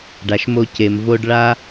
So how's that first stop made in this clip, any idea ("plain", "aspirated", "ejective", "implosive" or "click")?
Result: plain